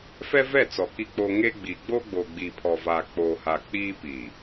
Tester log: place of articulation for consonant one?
labial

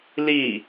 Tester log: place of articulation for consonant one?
alveolar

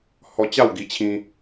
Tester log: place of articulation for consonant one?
glottal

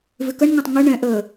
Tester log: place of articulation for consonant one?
labial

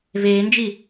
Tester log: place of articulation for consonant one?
labial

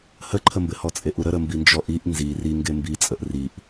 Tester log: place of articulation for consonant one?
glottal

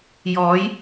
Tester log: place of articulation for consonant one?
palatal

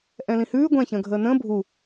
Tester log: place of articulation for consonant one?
glottal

